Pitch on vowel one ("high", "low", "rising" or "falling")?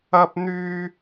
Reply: high